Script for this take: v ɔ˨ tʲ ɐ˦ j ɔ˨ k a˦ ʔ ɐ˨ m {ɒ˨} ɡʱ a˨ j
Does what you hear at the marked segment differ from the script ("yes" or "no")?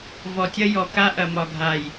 no